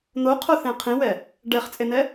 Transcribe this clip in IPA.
n̪ o qʰ o θ ẽ qʰ ĩ w ɛ | ɖ ɛ χ t͡sʼ e n̪ ɛ

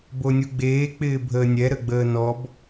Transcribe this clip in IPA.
b o nʲ u ɡ͡b eː k͡p ɪː bʱ əː nʲ ɛ ɾ ə ɡ͡b əː n ɔ b

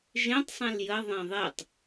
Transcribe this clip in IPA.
ʒ ẽ tˤ sˤ ɛ̃ l j ə ðˤ ɛ̃ ðˤ e tˤ

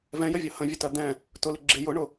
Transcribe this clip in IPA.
v ɛ̃ j ə vʲ ʌ h ə̃ vʲ ə t ɜ d̪ ɛ̃ | t ʊ l ɪ ɡ͡ǁ ɪ j ʊ ɳ ʊ

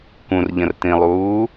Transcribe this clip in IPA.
k ũ r ʎ ə̃ r t ĩ lˠ uː

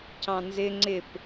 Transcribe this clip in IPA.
c ɑ̃ n z ɪ ŋ͡ǀ ɪ p

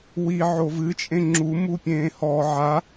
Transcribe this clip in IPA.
w i ʕ o v ɨ t͡ʃʼ ẽ ŋ͡ǁ u m u pʲ ẽː h ɔ ʕ a

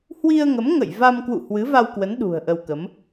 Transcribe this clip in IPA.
h w i˧ ə̯ ŋ ə˨˦ m ŋ ə̰˧˨ j v a˧ m k w ṵ˧˨ h w ɨ˨˦ v a˧ w k w ə˨˦ n ɗ ṳ˨˩ ə̯ ʔ ə˧ w k ə˨˦ m

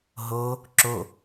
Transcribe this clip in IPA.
ɦ o | ǁ o

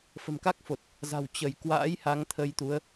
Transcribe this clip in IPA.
f ə̤˨˩ m k a˦˥ k̚ f o˨˩ t̚ | z a̤˨˩ w t͡ɕ ə˧˩ j k w a̰ː˧˥ j h a˨˦ ŋ t̪ʰ ə˧ j t̪ u˨˦ ə̯

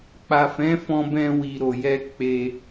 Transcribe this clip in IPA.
k͡p a˨ f ɛ̃˨˦ f ɔ̃˧ b ɛ̃˧ w i˨ ɾ o˨ j ɛ˧ k͡p e˧

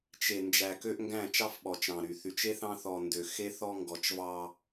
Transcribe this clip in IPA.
t͡ʃ e˨ n d͡ʒ æ˨ k ø˦ ʔ ŋ ɡ æ̃˦˨ t͡ʃ ɑ˦ f ɓ ɔ˨ t͡ʃ ɾ ɑ̃˨ ɾ y˨ θ y˨ t͡ʃ e˦ θ ɑ̃˦ θ ɔ˨ n d ø˨ x e˦ θ ɔ˦ ŋ ɡ ɔ˨ t͡ʃ v ɑ˦

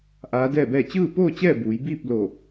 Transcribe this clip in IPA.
ʔ aː˧˥ d ɛː˥˨ b ɛː˥˨ t͡ɕ ɯː˥˨ p oː˥˨ t͡ɕ ɛː˥˨ b uː˩˧ j b iː˥˨ p̚ l o˧˩

